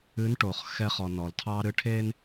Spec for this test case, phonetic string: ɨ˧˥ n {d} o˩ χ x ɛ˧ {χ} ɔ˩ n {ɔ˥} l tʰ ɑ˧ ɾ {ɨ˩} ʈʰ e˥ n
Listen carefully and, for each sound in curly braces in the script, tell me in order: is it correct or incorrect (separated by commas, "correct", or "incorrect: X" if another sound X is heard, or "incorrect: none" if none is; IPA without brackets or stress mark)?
incorrect: ʈ, correct, incorrect: ɔ˩, incorrect: ɨ˧˥